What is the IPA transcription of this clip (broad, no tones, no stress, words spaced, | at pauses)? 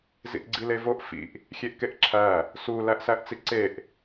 zḭʔɡ͡ǀilevoʔ fḭʔ | xʲeʔkeʔǁʰæ | su læʔsæʔt͡siǀeʔ